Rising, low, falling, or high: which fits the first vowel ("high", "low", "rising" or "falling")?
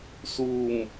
low